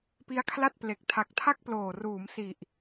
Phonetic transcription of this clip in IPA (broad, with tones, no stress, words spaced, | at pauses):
pi˦˥a̯kʰla˥˩t̚ ple˨˩k̚ tʰa˨˩k̚tʰa˥˩k̚ploː˨˩ ruː˩˦msi˨˩ʔ